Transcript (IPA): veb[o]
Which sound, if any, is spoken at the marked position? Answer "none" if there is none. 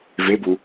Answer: u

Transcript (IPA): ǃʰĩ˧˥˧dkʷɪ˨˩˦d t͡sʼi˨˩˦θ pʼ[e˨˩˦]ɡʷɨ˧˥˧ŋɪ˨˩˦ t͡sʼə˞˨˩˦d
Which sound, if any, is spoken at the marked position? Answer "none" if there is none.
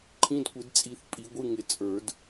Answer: i˨˩˦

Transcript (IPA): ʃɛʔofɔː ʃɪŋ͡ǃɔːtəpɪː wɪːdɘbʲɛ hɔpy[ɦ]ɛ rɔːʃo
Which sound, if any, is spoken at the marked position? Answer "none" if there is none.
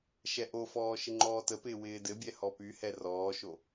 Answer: h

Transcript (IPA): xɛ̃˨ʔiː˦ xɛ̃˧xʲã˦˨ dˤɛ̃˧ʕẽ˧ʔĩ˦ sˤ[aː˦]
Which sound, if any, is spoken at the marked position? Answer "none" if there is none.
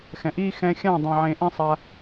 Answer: aː˦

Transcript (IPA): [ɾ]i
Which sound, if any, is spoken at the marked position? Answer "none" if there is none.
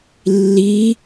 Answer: lː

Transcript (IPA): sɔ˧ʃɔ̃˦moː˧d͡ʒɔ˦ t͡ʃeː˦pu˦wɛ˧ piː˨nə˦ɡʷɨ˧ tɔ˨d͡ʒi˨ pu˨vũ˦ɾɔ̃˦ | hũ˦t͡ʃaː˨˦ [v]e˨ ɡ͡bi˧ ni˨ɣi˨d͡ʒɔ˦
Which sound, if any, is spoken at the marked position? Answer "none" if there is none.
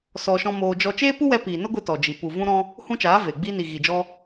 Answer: v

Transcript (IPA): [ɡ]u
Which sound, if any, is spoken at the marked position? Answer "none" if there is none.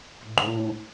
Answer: ɡ͡ǃ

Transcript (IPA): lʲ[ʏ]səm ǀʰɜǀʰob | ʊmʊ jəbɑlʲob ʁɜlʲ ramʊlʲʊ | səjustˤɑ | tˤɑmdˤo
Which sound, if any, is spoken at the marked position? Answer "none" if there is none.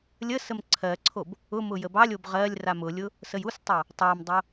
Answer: ə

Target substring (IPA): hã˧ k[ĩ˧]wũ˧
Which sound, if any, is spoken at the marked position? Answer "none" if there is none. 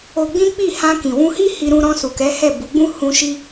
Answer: ĩ˨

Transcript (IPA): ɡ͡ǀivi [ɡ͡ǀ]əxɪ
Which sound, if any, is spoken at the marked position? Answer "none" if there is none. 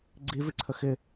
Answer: ǀʰ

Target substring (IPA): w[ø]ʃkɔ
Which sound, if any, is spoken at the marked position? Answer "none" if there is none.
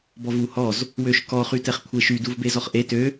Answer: ø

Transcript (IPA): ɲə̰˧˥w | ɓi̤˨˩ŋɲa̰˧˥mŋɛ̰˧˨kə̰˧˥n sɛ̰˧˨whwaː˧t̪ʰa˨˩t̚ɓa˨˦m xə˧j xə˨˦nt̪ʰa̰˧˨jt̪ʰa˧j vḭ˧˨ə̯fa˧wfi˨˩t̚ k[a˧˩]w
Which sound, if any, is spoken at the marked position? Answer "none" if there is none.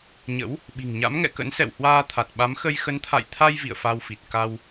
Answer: a˧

